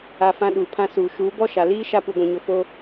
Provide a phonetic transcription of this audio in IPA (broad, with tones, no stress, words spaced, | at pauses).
a˨ fã˦ɗuː˨pʰã˦suː˨ ʃuː˨˦bɔ˦ʃa˨ liː˦ ʃa˦pu˨ɡʷĩ˨ɲʊ˨ fo˦